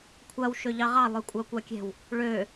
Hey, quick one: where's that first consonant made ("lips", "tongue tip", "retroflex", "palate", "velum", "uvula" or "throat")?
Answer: velum